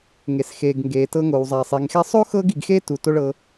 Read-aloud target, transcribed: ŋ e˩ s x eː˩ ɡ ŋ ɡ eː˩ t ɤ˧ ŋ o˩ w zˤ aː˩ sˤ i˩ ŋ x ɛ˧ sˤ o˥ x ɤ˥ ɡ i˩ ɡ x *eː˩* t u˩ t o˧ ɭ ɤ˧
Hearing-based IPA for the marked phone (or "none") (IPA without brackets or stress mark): eː˥